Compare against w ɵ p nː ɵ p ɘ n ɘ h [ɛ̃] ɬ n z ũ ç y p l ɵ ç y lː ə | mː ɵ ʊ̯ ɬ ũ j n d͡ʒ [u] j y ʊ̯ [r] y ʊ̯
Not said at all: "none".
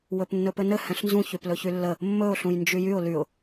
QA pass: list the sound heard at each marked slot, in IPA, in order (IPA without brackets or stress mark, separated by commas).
ɛ̃, y, l